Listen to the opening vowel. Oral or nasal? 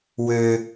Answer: oral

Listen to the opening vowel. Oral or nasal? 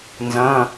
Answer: nasal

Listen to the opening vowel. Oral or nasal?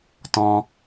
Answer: nasal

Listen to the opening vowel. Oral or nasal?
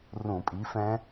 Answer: nasal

